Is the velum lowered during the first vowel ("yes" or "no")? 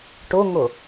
no